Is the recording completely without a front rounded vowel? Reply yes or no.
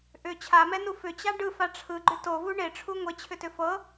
no